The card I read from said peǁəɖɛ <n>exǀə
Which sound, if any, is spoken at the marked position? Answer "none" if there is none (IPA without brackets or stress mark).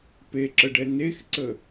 n